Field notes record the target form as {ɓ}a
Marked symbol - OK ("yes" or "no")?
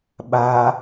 yes